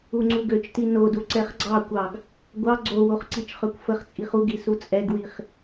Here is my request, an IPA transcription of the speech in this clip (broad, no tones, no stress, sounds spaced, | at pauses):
u ŋ͡ǀ u ɡ ø t͡ʃ t i n o d u ǀ ɛ χ ɡ͡ǀ ɑ kʷ ɑ ɡ | ɡʷ ɑ ɡ͡ǀ o w o χ ǀ i t͡ʃ χ ø kʷ f ə χ t͡sʼ i χ u ɡ i s u t͡sʼ ɛ ɡ w i χ